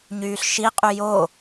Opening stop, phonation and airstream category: ejective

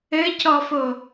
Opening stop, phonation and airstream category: plain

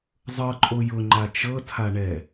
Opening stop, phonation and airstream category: click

